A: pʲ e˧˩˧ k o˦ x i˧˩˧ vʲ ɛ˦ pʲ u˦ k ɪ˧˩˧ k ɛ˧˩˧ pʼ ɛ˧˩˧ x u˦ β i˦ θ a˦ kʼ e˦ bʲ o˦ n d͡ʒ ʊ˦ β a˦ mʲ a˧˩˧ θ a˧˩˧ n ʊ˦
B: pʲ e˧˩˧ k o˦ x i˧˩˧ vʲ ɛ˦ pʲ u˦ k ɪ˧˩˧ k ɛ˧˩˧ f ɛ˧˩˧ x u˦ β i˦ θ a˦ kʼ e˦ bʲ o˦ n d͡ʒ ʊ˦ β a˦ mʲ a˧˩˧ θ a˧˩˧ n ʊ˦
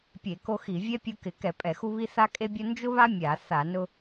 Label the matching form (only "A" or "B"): A